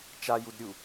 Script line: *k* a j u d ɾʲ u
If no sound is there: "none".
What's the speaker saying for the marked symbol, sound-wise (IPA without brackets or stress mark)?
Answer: t͡ʃ